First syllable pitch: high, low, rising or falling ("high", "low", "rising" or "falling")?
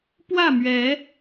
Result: falling